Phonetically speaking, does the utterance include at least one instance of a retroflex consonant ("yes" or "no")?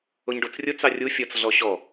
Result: yes